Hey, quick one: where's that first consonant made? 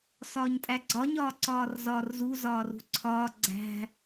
tongue tip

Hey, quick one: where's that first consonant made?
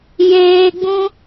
palate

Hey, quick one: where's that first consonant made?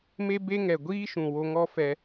lips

